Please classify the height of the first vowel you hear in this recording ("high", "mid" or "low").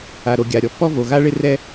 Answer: low